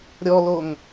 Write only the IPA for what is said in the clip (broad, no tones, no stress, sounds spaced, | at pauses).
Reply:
ɾʲ ɔ l o ŋ